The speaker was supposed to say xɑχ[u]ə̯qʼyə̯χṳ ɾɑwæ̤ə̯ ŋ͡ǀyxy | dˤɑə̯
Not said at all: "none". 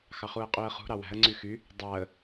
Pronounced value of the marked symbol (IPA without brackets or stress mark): u